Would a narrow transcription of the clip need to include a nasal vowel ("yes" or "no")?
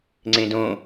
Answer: yes